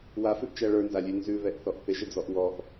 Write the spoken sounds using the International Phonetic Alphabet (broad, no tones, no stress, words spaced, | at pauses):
wafʉʔt͡ʃæ ɭə˞nzalʲʉ nzʉβɛʔθɔʔ θɪʒɪd͡zɔʔ wɔʔ